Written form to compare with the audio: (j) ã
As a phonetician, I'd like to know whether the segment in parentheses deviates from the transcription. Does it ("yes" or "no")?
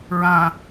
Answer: yes